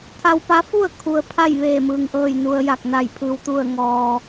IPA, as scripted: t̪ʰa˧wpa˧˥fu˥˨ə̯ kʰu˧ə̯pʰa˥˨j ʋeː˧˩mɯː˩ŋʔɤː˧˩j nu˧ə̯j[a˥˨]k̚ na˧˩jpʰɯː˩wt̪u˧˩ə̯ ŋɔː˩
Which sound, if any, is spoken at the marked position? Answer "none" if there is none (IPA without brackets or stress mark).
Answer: a˧˩